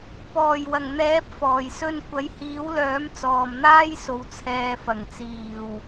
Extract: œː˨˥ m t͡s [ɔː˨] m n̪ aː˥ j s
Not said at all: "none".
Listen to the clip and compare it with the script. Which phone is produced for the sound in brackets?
ɔː˨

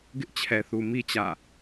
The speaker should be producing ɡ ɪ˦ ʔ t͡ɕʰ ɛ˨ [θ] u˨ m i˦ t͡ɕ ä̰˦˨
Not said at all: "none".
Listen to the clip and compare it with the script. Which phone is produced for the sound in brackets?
θ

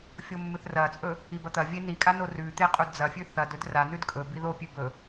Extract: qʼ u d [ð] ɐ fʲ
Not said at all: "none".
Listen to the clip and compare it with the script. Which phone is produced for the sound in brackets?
d͡z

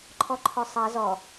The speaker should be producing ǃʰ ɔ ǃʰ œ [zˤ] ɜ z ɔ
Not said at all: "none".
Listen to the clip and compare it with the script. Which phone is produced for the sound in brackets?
sˤ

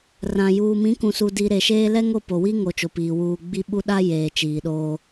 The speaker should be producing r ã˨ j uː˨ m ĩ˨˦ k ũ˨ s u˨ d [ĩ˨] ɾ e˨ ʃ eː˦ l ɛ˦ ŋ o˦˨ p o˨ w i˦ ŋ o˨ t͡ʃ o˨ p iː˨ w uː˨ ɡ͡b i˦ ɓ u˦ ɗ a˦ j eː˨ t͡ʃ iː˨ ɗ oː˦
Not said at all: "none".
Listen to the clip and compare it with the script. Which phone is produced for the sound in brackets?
i˨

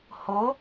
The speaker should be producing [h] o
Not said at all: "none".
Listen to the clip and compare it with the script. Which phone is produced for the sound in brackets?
h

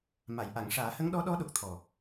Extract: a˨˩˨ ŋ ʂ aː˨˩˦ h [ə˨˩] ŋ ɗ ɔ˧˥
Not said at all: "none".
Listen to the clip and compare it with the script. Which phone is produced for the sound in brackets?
ə˧˥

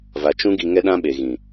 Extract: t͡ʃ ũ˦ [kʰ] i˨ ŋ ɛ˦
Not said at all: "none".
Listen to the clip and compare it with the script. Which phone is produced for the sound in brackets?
ɡ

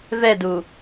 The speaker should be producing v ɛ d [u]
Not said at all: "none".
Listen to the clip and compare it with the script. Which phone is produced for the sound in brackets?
u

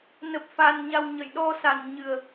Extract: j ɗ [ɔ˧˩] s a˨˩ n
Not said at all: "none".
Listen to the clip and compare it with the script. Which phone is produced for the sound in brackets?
ɔ˧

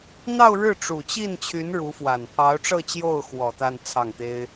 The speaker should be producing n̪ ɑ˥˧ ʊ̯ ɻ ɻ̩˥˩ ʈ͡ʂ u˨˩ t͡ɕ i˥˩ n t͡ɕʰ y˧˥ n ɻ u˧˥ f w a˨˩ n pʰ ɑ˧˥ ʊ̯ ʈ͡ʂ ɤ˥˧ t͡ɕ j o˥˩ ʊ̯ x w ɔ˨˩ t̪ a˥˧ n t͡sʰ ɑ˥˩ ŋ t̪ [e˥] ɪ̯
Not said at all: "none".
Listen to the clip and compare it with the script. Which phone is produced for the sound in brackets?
e˥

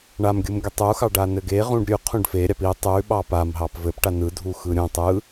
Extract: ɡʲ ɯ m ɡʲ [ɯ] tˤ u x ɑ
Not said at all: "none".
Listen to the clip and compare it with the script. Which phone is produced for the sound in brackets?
ɯ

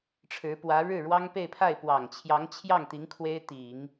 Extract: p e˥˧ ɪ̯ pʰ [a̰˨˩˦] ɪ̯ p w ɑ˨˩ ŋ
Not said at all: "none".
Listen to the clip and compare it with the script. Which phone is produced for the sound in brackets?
a˥˩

